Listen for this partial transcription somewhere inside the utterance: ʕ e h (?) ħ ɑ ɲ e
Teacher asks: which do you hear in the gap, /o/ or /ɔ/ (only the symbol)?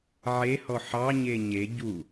ɔ